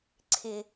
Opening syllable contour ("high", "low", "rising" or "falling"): low